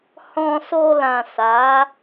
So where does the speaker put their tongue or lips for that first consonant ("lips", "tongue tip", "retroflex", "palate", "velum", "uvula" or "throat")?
throat